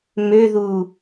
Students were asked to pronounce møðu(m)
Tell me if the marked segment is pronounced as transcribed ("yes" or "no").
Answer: no